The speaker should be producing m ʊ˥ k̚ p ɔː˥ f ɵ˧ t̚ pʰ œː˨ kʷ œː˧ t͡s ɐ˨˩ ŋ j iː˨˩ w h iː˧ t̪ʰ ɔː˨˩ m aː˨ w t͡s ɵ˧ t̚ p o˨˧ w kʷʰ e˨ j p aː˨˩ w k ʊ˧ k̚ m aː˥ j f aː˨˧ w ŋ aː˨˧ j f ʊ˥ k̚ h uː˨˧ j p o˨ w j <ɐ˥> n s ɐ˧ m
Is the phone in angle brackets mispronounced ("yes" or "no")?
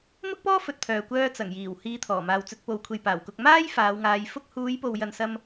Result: yes